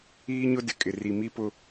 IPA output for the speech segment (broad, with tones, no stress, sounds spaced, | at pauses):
iː˦ ɲ ʊ˦ d ɪ˨ kʼ ɪ˨ r i˨ m i˦ p ʊ˦